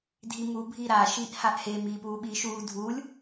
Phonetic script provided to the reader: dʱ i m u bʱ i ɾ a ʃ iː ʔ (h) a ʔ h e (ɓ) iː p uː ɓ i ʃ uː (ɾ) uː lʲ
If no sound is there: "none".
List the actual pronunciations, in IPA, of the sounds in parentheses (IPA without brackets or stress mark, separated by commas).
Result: h, m, dʱ